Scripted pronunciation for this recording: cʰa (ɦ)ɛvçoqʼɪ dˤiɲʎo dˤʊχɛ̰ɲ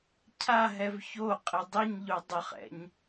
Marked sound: correct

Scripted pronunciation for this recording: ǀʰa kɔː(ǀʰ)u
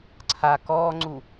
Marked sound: incorrect: ŋ͡ǀ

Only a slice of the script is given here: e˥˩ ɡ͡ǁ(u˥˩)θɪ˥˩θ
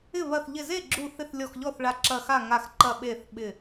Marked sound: correct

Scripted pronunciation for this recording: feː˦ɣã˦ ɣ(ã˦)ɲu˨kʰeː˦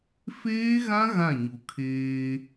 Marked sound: incorrect: ã˦˨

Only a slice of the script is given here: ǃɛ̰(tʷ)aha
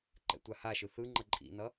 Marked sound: correct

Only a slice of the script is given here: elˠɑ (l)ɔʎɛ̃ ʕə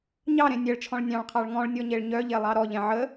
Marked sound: incorrect: ɾ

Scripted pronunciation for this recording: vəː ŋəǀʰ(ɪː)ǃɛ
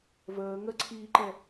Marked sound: incorrect: iː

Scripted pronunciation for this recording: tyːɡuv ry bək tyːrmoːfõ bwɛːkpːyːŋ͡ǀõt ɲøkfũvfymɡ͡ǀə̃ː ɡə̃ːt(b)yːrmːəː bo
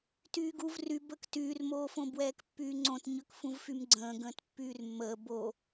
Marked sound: incorrect: pː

